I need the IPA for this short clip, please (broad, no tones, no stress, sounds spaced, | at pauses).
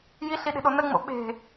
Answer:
j i ɬ i ɗ e̤ ɗ o n ə ŋ͡m o̰ ɓ e̤